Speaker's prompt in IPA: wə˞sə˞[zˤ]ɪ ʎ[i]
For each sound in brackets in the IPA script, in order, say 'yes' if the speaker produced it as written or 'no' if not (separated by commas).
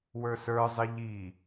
yes, yes